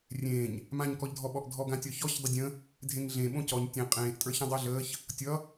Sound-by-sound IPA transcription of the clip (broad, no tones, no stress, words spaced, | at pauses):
rʲẽːɲ | mãɲkɔʎdʱɔɓɔʔ dʱɔɡãtʲɒçɔç dˤədʲə̃ | dʱẽŋɮẽɓõ cɔɲ tʲẽ qʼẽːʔtʼə˞çã dˤəːɮəːç | tʲʌ